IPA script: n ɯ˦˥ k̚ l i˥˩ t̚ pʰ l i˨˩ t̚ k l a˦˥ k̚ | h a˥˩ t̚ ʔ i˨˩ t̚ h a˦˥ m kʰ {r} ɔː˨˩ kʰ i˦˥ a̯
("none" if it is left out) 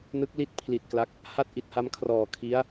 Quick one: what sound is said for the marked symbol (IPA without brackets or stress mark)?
r